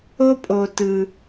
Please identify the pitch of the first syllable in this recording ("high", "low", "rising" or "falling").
high